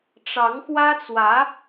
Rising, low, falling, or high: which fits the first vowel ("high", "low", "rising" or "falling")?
rising